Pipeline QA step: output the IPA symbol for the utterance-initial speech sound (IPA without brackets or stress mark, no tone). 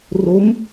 r